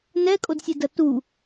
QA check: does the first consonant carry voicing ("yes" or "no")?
yes